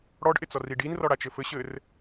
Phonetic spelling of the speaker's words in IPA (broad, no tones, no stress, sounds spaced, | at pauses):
ɽ ɔ ɖ ʔ ɪ t͡s ɔ r i ɖ i n r ɔ ɽ a t͡ʃ ɘ f ɘ ɕ ɘ r